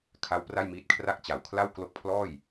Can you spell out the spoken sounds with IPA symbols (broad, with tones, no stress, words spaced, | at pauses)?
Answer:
kʰa˦˥w pra˥˩jmiː˦˥t̚kʰra˥˩k̚ t͡ɕa˨˩wkʰla˥˩w klo˦˥k̚pʰlɔː˥˩j